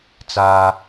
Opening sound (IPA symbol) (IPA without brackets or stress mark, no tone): t͡s